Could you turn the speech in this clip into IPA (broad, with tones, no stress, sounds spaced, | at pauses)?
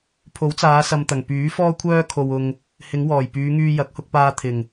pʰ o˨˥ w t͡s aː˨˧ s ɐ˨ m t̪ ɐ˨˩ ŋ p yː˨˥ f ɔː˥ kʷʰ œː˥ kʰ o˧ w ʊ˧ ŋ | h ɪ˨˧ ŋ w ɔː˨˩ j p yː˨˧ ŋ yː˧ j ɐ˨˥ k̚ h ʊ˧ k̚ p aː˧ t̪ʰ ɪ˨˩ ŋ